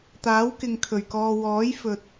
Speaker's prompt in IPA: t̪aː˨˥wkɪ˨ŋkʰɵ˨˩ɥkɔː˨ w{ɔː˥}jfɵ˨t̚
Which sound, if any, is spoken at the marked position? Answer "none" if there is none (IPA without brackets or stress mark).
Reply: ɔː˨˥